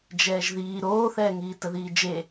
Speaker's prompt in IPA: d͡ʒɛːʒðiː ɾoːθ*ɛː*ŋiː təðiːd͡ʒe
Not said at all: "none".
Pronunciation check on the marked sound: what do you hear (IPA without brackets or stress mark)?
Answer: ɛː